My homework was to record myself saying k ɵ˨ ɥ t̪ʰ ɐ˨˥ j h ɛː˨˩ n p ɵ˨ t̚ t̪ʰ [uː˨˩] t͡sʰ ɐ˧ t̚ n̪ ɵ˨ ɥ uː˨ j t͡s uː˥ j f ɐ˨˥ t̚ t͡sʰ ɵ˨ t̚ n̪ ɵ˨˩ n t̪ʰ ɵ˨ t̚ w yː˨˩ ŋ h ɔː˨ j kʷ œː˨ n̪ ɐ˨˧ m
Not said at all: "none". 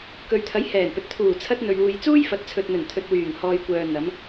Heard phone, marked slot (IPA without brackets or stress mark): uː˨˩